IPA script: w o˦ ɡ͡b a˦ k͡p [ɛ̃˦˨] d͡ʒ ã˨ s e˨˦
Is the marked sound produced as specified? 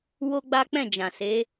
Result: yes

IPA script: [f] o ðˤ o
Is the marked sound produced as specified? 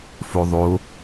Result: yes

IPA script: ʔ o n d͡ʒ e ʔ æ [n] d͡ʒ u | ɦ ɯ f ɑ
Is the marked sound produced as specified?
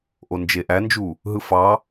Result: yes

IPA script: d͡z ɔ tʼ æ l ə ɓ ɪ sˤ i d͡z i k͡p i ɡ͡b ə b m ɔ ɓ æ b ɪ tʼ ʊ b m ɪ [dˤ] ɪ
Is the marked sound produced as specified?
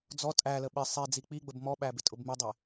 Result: yes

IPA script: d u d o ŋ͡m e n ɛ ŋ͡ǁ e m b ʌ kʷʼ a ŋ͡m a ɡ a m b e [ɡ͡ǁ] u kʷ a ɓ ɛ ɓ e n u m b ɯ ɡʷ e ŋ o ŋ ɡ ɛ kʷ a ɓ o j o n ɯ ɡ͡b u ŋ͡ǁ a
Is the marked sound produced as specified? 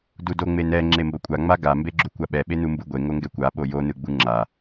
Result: yes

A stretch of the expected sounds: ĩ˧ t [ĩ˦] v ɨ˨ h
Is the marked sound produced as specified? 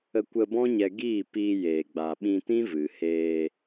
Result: yes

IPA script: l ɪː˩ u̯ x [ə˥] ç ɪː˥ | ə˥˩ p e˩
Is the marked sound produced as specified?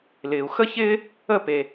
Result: yes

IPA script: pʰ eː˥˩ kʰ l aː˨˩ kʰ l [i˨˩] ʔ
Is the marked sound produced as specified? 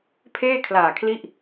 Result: no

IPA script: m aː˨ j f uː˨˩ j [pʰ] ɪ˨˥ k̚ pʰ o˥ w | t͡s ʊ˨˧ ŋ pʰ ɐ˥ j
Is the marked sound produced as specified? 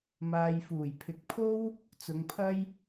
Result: yes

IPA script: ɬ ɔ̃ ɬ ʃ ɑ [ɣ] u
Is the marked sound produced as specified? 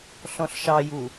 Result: no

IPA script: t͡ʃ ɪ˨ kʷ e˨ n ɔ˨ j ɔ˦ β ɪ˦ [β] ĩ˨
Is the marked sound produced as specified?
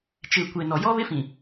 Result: no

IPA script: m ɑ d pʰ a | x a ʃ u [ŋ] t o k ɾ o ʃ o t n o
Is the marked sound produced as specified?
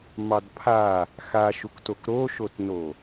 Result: no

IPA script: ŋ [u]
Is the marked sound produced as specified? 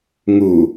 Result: yes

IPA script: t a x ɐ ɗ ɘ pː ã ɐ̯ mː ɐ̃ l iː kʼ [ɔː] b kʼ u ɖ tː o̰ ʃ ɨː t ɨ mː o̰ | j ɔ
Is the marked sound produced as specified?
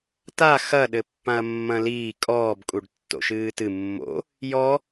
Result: yes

